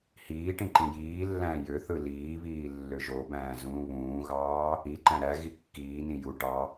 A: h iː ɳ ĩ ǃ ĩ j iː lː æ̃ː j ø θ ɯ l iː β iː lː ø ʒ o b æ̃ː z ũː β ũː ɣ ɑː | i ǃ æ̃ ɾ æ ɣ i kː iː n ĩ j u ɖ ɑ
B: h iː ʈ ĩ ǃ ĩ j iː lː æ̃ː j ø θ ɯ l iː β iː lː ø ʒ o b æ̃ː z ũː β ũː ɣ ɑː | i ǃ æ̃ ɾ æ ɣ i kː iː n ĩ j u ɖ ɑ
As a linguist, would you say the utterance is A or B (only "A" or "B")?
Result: B